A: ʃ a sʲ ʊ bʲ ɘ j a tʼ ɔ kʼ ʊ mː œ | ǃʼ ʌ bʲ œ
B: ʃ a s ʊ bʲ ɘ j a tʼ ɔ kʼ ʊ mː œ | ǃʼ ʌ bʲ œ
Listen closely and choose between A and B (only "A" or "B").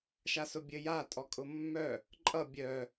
B